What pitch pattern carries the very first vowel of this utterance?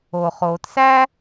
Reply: low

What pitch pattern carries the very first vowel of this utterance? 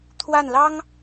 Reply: falling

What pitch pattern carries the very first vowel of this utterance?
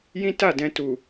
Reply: high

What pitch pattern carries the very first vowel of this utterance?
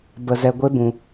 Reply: low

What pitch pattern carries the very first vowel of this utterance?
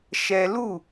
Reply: high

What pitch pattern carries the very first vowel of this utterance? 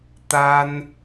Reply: high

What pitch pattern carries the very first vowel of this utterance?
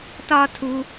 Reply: high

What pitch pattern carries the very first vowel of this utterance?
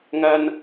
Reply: low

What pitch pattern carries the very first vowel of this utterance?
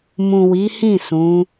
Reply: low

